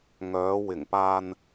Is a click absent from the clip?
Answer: yes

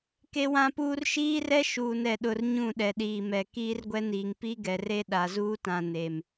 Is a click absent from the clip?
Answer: yes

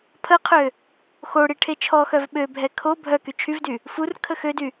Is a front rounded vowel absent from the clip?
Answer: no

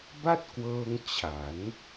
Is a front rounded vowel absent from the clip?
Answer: yes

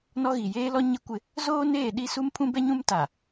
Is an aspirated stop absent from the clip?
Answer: no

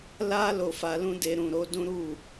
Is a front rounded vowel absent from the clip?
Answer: yes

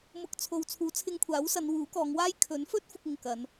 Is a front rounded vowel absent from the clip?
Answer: yes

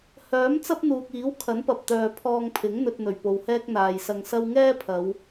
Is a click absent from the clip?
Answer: yes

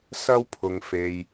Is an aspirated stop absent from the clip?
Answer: no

